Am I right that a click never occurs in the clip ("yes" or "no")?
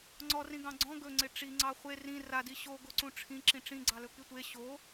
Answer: no